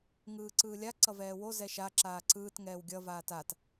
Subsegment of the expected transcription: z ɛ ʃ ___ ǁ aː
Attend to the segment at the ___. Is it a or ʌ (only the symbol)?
a